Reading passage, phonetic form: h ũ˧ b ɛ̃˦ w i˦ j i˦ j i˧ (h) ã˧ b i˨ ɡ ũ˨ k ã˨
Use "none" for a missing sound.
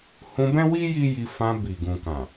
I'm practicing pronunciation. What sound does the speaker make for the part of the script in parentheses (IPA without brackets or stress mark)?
f